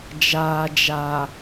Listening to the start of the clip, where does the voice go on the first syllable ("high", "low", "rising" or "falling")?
low